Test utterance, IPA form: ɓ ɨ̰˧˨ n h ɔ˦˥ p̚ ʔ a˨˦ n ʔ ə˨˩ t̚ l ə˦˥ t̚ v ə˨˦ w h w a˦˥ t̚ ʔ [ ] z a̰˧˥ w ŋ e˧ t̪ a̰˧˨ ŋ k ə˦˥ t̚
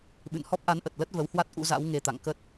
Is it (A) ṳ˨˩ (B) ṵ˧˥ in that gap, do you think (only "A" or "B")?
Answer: B